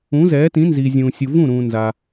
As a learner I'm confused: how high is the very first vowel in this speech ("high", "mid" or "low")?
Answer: high